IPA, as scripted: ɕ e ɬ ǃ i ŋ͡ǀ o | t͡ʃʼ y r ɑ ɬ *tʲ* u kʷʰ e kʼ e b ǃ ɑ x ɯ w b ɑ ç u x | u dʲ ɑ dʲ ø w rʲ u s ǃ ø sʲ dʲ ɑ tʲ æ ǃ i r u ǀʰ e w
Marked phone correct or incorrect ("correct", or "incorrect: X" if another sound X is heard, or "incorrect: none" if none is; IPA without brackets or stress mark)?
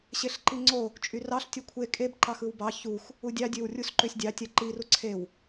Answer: correct